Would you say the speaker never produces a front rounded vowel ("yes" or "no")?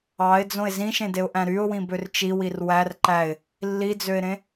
no